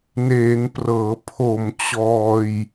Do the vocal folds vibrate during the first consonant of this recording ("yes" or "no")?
yes